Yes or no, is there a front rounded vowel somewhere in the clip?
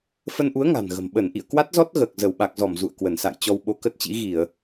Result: no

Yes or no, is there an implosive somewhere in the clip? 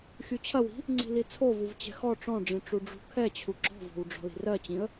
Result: no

